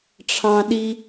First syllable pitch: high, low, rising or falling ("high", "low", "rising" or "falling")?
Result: low